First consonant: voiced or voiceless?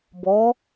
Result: voiced